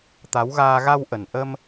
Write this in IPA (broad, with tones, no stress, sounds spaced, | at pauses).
t̪ a˨˦ w ɣ aː˧ ɣ a˧ w ʔ ə˨˩ n ʔ əː˧ m